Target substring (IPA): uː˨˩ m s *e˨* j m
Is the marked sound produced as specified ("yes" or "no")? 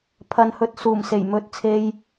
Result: no